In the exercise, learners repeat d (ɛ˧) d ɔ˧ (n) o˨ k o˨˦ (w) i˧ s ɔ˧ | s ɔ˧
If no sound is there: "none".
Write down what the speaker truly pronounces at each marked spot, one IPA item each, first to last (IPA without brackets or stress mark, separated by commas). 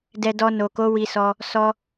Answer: ɛ˧, n, w